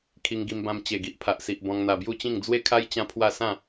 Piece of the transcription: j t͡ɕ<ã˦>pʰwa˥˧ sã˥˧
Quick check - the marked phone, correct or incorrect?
correct